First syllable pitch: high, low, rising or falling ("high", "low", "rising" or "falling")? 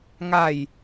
falling